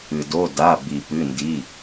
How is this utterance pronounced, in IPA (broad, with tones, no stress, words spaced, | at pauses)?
ɨ˩do˩˧˩ da˩˧˩bi˩ pɨ˩˧˩ndi˩˧˩